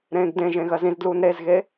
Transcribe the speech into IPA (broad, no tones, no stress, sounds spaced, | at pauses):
ɾ ẽː ɡ d ẽ ʒ ẽ ɣ ɜ z ĩ z d l uː n ɾ e z ɣ e